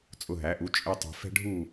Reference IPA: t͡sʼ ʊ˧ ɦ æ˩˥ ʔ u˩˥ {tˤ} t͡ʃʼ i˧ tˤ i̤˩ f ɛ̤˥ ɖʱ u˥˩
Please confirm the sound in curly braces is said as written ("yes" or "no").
no